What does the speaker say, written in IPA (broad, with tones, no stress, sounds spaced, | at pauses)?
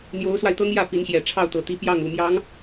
n̪ j o˧˥ ʊ̯ s w a˧ ɪ̯ t̪ ɤ˥ ŋ j ä˥˩ p i˧˥ n ɕ j ɛ˨˩ ʈ͡ʂʰ ɑ˥˩ ʊ̯ t̪ ɤ˨˩ t̪ i˧˥ p j ɑ˥˩ ŋ u˨˩ m j ɑ˧˥ ŋ